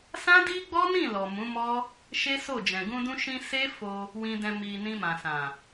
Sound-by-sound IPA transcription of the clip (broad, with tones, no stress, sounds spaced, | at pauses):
s ã˦ d i˦ ɡ͡b ɔ˦ n ĩ˦˨ l ɔ˨ m ũ˨˦ m ɔ˦ | ʃ e˦ s o˦˨ d͡ʒ ɛ̃˨ ɡ ũ˧ d ũ˧ ʃ ĩ˧ s e˦ f o˧ | w ĩ˧ d ɛ̃˧ m i˨ n ĩ˧ m ã˨ s ã˨